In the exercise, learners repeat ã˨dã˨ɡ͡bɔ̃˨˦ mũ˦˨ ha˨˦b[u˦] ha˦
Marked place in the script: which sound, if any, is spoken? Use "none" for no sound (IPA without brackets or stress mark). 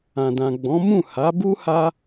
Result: u˦